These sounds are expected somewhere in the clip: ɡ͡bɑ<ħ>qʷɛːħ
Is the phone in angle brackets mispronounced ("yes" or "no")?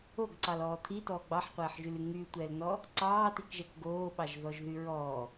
no